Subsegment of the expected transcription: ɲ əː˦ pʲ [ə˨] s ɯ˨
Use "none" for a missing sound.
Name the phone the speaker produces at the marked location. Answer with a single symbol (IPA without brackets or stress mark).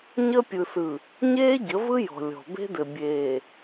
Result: ɯ˨